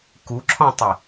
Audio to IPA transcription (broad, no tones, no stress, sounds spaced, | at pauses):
k u ǁʰ ɔ̃ tˤ i